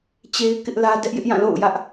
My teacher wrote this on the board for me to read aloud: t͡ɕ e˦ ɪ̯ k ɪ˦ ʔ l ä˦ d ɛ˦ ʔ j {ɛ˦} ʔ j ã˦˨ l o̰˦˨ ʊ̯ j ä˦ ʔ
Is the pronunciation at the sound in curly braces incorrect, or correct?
incorrect